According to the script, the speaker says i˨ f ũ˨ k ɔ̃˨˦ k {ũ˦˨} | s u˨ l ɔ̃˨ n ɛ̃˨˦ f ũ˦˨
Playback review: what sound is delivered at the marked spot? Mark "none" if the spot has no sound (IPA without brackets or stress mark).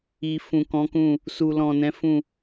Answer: ũ˦˨